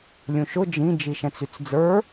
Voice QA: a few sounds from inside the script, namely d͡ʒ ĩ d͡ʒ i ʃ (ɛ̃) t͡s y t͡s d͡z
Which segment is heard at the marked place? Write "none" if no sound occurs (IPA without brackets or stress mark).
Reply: ɛ̃